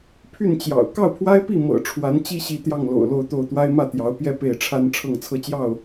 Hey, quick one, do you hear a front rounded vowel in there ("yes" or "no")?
yes